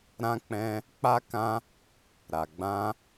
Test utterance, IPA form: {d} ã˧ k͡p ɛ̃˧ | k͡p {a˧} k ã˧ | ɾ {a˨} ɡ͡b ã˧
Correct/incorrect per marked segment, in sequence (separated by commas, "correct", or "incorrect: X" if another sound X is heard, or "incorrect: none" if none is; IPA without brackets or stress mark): incorrect: ɾ, correct, correct